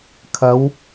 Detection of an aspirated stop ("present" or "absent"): present